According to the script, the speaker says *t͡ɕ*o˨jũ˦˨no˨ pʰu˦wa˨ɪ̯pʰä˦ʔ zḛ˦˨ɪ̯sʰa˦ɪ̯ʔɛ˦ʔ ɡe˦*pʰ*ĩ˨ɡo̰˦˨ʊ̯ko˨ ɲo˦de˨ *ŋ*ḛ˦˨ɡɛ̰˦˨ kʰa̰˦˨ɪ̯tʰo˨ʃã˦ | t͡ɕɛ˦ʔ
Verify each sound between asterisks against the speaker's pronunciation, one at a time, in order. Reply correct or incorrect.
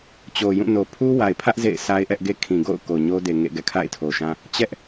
correct, incorrect, correct

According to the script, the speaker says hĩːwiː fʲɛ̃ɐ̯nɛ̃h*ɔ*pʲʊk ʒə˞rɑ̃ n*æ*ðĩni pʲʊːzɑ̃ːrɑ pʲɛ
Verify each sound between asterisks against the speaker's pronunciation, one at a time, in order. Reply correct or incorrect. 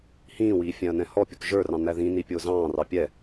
correct, correct

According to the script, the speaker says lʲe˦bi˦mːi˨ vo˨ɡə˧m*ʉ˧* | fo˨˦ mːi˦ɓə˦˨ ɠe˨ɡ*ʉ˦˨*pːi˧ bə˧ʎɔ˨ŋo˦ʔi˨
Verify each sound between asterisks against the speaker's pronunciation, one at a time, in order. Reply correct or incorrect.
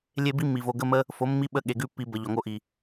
incorrect, correct

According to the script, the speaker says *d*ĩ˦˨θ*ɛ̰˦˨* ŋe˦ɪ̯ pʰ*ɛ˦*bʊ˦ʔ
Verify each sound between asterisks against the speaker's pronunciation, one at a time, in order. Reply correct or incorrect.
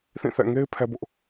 incorrect, correct, correct

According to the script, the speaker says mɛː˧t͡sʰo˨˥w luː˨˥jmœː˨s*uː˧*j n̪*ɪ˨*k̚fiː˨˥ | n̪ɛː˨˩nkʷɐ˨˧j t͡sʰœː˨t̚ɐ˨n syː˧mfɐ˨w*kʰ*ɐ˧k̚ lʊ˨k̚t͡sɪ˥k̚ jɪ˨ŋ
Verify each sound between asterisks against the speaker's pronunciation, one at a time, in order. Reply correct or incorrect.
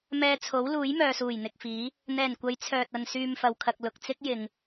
incorrect, correct, correct

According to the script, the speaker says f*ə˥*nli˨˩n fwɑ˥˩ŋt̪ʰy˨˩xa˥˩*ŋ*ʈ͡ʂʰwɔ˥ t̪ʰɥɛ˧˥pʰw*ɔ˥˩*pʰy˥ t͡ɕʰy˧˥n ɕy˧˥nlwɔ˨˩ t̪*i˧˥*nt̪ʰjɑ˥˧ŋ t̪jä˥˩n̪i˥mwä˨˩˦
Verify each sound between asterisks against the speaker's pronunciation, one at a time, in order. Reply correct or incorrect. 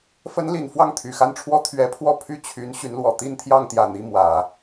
incorrect, incorrect, correct, incorrect

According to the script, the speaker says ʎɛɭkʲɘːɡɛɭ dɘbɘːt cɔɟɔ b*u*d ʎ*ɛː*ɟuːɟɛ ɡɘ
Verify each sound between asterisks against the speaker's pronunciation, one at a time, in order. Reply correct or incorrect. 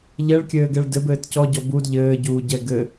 correct, incorrect

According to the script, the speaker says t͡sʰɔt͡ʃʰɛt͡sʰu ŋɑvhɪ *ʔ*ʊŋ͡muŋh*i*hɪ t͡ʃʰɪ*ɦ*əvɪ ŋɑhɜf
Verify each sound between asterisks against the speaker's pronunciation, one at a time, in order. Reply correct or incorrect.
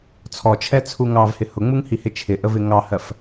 incorrect, correct, incorrect

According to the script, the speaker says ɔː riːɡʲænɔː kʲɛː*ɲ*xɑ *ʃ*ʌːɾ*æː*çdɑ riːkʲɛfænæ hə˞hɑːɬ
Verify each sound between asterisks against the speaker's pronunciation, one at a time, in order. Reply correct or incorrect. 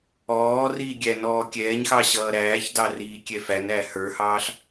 correct, incorrect, correct

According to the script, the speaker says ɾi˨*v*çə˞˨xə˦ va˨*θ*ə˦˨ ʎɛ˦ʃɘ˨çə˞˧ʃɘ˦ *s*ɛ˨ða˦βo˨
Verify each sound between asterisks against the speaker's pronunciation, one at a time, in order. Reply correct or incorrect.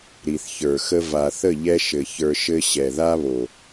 incorrect, correct, incorrect

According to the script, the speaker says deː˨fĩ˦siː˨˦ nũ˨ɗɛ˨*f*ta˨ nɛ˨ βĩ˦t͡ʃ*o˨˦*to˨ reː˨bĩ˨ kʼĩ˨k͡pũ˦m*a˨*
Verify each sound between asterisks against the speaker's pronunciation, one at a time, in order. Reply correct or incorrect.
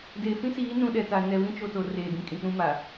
incorrect, incorrect, correct

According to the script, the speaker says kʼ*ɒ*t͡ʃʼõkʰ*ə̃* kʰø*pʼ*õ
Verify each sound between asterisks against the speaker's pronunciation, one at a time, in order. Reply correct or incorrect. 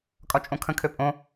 correct, correct, correct

